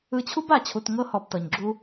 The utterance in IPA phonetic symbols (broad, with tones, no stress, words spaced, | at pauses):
ɯ˧t͡ɕʰu˦ba˨˦t͡ɕʰu˨t ŋɤ˦ hɔ˧btɤ˨ɲɡ͡ǁu˦